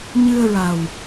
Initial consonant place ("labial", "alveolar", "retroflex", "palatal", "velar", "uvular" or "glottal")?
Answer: palatal